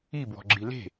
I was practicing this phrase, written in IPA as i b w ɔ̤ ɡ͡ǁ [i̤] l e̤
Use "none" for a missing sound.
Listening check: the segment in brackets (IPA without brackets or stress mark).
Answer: i